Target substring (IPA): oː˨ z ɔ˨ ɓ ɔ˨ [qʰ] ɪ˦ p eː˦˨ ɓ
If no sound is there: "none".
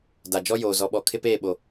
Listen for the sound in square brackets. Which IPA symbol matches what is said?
kʰ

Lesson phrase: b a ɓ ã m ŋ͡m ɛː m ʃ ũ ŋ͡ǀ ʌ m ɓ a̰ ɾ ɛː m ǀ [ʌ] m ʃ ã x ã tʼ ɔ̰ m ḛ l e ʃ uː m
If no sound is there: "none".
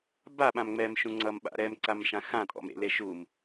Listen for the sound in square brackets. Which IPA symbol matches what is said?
a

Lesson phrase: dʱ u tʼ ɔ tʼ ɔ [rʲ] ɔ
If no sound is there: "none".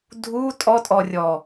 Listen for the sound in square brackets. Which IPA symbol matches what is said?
rʲ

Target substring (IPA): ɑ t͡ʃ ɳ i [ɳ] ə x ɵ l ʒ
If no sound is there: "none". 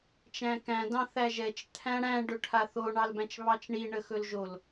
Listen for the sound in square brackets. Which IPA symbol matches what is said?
ɳ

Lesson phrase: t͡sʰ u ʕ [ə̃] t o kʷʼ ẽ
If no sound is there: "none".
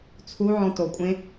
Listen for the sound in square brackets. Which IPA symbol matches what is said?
ɔ̃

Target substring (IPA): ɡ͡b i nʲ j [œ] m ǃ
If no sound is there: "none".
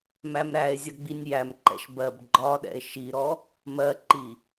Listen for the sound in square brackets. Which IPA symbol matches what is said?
æ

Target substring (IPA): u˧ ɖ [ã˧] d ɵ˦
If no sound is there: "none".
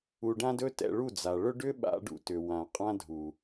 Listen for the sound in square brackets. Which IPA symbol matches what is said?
ã˦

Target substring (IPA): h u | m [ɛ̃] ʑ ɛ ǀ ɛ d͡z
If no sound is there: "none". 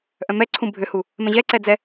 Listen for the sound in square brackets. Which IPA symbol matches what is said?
ɛ̃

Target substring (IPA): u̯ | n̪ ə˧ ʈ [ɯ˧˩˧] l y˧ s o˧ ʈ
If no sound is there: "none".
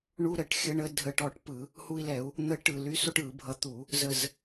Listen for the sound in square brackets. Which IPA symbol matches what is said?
ɯ˧˩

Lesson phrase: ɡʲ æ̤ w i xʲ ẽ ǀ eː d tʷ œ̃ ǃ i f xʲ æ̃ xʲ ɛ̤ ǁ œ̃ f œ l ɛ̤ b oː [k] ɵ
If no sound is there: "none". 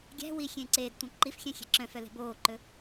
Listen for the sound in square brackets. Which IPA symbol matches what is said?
ǃ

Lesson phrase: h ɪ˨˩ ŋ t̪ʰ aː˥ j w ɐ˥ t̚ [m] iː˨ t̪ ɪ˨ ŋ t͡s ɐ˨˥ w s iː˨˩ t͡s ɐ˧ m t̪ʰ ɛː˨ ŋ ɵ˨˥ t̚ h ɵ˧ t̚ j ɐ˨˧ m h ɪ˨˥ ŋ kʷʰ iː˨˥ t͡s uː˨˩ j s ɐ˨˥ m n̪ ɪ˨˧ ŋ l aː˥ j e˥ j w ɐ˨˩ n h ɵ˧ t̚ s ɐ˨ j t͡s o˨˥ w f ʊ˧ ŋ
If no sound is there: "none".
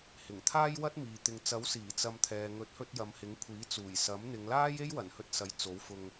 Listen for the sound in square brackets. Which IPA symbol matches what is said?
m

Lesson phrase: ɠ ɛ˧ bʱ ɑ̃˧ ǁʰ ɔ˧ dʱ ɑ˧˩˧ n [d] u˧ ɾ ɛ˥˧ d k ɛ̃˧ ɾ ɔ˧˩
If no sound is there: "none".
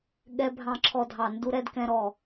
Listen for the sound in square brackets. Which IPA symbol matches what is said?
d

